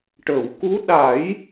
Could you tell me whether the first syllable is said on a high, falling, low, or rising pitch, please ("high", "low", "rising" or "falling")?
low